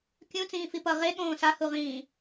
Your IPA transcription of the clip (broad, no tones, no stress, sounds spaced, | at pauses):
kʲ ũ t͡s ĩː f i p ʌ ʁ e ɠ õː s a h u ʁ ĩː